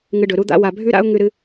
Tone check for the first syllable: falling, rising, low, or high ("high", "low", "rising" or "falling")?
low